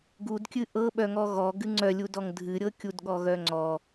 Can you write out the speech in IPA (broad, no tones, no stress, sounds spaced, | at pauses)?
ɡ u d kʲ ɨ ʔ ɤ ɓ œ ŋ ɔ ɣ ɔ ɡ ɨ ŋ͡ǀ œ lʲ u d ɔ ŋ dʱ ɨ ɾʲ ɤ kʲ u d ɠ ɔ ɣ œ ŋ͡ǀ ɔ